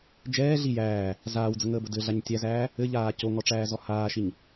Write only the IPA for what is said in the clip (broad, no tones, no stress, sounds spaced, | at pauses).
d͡ʒ ɛː ɮ i j æː | z aː w d͡z ə ŋ əː b ə d ɘ ɮ a ɲ tʲ æ z æː | ɘ ʎ aː c o ŋ ɔ ʈ͡ʂ æː z ɔ h aː ʃ i ɲ